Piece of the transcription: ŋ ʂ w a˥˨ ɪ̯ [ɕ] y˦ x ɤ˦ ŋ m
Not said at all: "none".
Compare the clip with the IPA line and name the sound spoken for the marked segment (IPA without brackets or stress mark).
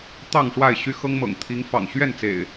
ɕ